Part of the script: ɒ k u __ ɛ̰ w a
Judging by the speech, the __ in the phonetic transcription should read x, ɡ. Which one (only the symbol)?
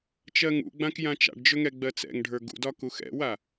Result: x